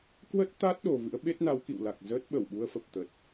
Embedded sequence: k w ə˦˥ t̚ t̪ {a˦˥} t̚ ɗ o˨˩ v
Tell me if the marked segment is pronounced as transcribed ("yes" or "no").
yes